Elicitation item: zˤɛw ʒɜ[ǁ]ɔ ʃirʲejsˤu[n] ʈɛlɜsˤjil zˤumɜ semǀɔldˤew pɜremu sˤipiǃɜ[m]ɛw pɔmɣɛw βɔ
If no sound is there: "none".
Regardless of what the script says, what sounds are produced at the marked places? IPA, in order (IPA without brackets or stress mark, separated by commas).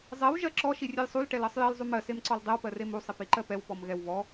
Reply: ǁ, l, p